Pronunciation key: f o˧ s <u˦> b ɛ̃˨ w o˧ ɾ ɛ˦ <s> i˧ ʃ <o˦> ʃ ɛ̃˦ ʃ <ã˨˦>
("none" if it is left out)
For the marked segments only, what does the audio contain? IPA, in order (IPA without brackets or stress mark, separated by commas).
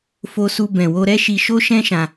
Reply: u˧, ʃ, o˦, ã˧